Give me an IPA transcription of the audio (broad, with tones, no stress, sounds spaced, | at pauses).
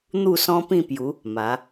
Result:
n̪ u˥˧ s ɔ̃˦ p ĩ˥˧ p j u˨˦ | m a˨˦